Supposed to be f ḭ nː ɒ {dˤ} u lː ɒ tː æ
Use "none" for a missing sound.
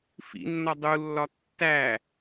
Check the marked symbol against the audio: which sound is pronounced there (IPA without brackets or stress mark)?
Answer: dˤ